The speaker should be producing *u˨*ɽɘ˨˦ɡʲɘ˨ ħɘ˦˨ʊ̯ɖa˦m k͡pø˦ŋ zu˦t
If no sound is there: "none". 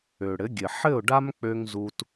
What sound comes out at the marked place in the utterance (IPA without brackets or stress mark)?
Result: ø˨